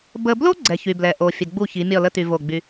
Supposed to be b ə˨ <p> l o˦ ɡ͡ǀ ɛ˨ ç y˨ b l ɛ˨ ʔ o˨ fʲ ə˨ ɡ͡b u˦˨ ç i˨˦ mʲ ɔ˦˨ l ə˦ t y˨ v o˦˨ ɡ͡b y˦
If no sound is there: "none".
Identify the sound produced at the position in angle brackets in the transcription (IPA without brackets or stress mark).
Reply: b